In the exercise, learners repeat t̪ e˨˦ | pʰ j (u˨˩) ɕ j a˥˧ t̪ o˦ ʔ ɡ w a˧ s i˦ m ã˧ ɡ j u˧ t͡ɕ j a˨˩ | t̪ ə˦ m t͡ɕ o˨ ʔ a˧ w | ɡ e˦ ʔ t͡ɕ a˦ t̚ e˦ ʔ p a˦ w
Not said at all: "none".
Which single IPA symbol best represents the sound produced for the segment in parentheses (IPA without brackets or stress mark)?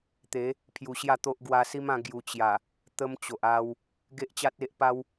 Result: u˧